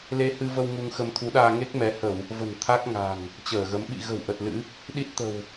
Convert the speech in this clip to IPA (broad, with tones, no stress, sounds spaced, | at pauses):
l e˧ h ɨ˧ v ə˧ w ŋ u˧ ŋ x ə˧ m t̪ʰ u˨˦ ɗ aː˧ ŋ e˦˥ k̚ m ɛ˨˦ h ə˧˩˨ w | v ə̤˨˩ n t̪ʰ a˦˥ k̚ ŋ a̤˨˩ ŋ | t͡ɕ əː˧˩ ɣ ə˨˦ m ɓ ḭ˧˨ ɣ ə̤˨˩ w ʔ ə˨˩ t̚ l ɨ̰˧˥ | ɗ i˦˥ t̚ t̪ ə̤˨˩ w